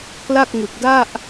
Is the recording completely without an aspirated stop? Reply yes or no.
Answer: yes